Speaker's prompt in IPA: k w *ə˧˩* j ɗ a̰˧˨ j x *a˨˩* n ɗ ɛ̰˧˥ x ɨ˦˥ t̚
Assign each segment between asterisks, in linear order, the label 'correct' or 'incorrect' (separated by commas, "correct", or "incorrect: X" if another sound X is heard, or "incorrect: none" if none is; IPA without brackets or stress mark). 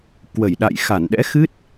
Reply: correct, incorrect: a˧˩